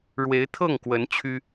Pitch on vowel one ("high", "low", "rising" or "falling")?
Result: rising